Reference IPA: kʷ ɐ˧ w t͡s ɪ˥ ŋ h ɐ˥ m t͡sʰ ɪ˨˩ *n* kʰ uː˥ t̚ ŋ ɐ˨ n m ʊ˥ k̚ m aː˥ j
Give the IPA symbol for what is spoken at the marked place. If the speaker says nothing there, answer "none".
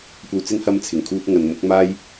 ŋ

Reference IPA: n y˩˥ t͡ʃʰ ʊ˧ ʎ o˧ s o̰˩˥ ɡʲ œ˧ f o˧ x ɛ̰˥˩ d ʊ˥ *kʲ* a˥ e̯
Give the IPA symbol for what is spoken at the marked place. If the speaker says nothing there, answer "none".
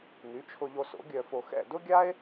ɡʲ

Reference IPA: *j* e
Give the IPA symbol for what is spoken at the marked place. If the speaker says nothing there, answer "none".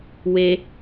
w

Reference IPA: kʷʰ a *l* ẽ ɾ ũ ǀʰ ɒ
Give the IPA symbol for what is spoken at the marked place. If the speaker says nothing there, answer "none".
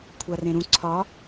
r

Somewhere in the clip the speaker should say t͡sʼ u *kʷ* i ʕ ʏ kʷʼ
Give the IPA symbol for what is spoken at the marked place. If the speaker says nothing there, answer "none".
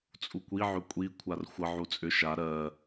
kʷ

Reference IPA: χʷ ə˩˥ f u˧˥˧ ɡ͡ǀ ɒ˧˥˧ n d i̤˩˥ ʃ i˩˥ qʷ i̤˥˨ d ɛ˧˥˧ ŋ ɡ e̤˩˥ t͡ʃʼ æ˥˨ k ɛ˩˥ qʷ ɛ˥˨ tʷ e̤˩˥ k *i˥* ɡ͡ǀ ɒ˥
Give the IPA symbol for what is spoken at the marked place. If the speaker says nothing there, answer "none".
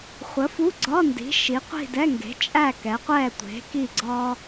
i˥˨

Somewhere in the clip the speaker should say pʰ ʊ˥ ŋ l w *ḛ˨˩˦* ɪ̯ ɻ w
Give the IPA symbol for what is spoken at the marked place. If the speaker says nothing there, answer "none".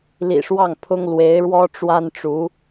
e˧˥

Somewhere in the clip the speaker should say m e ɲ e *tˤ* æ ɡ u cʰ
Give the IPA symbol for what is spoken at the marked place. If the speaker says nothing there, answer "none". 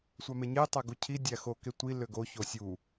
tˤ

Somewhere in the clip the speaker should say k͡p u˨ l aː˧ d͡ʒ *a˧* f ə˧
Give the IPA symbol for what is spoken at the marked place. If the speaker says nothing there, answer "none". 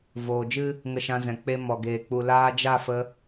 a˦˨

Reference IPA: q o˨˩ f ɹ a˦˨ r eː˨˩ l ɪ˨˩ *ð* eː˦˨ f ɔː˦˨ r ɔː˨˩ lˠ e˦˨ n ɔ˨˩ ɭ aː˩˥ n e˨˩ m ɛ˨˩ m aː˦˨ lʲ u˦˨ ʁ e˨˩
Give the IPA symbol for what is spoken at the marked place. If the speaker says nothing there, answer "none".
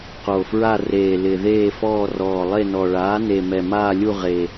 ð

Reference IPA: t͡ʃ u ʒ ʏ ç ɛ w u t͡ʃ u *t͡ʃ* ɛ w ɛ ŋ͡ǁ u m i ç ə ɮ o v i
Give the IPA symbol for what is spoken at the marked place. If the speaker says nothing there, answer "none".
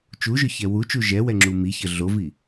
ʒ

